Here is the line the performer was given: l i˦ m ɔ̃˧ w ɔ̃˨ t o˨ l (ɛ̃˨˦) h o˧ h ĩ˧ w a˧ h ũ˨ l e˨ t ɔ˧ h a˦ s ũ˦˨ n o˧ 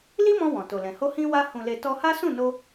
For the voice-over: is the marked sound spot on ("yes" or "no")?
no